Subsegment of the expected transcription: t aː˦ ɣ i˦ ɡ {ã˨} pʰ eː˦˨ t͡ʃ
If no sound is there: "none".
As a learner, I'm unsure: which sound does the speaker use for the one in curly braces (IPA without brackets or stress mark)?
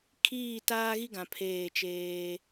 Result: ã˨